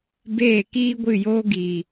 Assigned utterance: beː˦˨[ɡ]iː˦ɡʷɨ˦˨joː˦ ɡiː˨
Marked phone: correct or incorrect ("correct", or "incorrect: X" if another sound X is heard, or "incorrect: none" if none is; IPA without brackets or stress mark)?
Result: incorrect: k